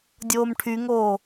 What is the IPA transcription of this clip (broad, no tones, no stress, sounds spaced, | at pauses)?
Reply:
dʲ oː m ʈʰ y ŋ oː